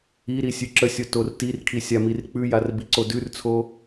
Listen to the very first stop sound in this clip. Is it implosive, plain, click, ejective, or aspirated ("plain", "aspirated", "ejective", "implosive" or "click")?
click